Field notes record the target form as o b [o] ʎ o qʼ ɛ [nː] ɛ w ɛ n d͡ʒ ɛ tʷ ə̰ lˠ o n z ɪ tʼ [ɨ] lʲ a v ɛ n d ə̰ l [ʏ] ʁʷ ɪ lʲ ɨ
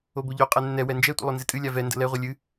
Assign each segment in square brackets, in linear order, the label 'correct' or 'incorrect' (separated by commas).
correct, correct, correct, incorrect